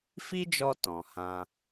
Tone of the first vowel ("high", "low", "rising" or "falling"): high